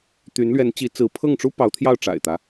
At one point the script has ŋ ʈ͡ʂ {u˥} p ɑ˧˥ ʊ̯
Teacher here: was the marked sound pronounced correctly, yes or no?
yes